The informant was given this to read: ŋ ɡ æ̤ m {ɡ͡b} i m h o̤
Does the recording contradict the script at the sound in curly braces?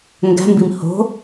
yes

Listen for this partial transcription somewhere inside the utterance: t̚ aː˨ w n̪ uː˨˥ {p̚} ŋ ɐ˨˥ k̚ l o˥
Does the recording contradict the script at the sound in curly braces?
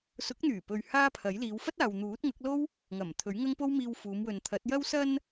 yes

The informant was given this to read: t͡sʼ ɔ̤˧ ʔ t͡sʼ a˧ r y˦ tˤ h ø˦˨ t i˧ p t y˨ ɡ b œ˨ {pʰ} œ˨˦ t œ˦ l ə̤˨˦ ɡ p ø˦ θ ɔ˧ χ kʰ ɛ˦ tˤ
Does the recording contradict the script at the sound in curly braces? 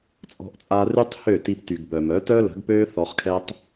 yes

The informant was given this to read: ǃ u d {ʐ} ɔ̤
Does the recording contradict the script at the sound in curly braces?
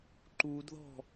yes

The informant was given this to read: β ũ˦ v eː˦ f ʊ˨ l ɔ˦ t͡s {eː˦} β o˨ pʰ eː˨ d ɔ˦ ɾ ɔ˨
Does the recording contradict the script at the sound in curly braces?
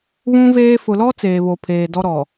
yes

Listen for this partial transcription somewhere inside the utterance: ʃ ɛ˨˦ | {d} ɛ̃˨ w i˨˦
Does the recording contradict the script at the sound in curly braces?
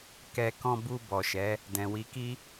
no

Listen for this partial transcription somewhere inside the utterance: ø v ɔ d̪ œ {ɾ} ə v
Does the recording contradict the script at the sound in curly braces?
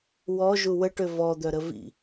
no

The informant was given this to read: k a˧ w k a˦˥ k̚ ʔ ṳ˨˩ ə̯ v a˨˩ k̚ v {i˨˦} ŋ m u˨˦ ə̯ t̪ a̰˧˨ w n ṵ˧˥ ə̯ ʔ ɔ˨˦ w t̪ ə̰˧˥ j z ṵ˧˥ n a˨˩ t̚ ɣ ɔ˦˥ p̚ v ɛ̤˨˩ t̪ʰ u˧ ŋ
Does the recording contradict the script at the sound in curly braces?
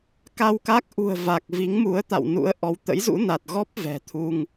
no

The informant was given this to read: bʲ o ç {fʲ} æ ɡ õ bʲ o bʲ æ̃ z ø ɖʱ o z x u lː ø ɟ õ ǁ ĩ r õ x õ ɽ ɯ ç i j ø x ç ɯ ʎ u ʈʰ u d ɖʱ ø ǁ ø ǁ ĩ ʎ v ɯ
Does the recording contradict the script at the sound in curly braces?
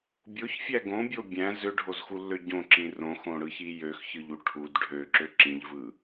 no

